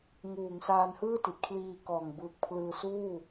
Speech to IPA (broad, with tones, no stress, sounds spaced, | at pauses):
ŋ uː˩˦ ŋ s aː˧ n h ɯː˥˩ t i˨˩ t̚ kʰ l iː˧ k ɔː˨˩ ŋ b ɯː˨˩ k̚ pʰ l ɯː˧ s uː˥˩